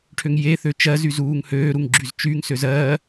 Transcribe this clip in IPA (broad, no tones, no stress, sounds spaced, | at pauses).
ʈʰ ø ŋ j e θ ø t͡ʃ ɜ z y z uː ŋ h øː ɾ u ŋ ɡ͡ǁ y z t͡ʃ y ŋ s ø z ɜː